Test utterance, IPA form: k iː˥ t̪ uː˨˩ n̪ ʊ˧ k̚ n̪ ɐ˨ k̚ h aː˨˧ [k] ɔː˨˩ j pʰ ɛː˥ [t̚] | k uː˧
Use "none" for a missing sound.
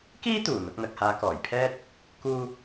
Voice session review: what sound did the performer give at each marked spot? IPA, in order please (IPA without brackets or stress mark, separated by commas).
k, t̚